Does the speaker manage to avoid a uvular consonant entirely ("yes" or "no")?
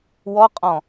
no